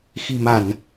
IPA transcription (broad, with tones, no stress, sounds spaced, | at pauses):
x i̤˨˩ m a˧˩˨ n